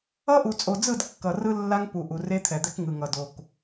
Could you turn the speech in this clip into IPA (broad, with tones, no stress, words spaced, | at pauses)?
ʌ˦ʔu˨t͡sʼo˨d͡zɯ˦˨d kːʌ˨ rɯ˦lːa˦ŋpu˨ ʔu˨re˦t̪ʰɛ˨ d̪ɛ˦kŋɯ˨ŋʌ˨do˨k